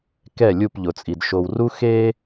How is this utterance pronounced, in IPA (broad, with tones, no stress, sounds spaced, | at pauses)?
k ɛ˦˨ lʲ u˦˨ p ʎ ʊ˨ t͡sʼ i˨ d ʃ o˨ w r u˦ x e˦